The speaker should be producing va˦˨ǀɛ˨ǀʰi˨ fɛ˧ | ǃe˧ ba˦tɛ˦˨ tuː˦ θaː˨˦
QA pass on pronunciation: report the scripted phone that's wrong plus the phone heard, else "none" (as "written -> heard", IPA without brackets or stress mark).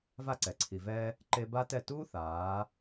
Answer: f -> v